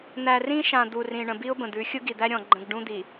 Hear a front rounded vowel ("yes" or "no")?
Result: no